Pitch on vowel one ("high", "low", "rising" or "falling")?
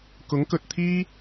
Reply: rising